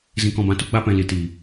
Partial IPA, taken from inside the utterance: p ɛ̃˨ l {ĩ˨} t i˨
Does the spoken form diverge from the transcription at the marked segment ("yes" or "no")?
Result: yes